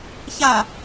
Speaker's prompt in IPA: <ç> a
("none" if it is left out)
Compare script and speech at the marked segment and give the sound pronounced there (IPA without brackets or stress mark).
ç